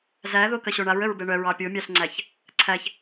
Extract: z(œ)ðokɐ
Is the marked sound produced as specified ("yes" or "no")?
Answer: no